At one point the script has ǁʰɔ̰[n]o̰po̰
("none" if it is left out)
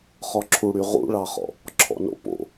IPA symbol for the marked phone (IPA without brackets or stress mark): n